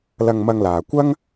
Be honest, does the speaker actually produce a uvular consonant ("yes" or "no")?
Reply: no